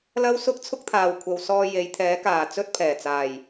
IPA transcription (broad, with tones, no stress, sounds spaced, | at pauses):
l ɐ˥ w s ʊ˥ k̚ t͡sʰ ʊ˥ k̚ t̪ʰ aː˨ w kʷʰ ɐ˨ w s ɔː˧ j e˨˧ j t̪ʰ ɛː˨˥ k aː˨˩ t͡s ɵ˥ t̚ pʰ ɛː˨˩ t͡s aː˨˩ j